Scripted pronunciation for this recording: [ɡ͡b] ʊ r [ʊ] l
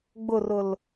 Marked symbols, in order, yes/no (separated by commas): yes, yes